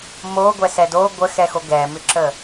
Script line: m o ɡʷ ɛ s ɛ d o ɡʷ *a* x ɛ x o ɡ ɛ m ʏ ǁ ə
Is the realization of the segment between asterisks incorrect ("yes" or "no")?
yes